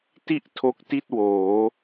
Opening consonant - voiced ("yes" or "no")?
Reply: no